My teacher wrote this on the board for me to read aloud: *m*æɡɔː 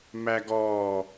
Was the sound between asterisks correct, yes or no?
yes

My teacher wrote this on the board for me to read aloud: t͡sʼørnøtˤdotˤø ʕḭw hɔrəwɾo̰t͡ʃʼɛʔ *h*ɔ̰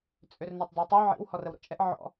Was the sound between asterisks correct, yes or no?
no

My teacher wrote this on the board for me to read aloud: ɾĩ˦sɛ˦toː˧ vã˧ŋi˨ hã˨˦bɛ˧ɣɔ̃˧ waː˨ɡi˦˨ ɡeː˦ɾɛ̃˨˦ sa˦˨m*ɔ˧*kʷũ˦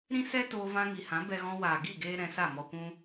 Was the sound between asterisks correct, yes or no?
yes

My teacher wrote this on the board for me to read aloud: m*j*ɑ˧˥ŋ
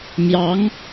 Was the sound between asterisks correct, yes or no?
yes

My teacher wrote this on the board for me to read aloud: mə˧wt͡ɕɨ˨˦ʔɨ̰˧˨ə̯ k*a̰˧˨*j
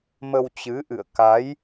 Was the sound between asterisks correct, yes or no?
no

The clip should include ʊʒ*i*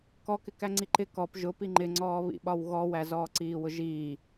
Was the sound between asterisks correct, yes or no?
no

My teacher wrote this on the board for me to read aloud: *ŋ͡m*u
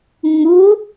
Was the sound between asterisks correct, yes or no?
yes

